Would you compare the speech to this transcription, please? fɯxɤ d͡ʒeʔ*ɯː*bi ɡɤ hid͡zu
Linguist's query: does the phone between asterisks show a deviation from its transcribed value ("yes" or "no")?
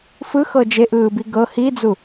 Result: no